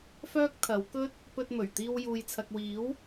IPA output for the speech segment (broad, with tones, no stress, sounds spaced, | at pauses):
f œː˥ k̚ t̪ʰ ɐ˨˥ w k ɵ˥ t̚ | p ɵ˧ t̚ m ɵ˨˩ ɥ t̪ iː˧ w j uː˨ j t͡sʰ ɐ˨ k̚ w iː˨˥ w